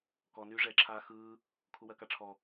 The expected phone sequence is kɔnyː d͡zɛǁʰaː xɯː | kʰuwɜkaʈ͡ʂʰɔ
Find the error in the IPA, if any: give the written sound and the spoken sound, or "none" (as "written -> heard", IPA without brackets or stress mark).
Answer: d͡z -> ʐ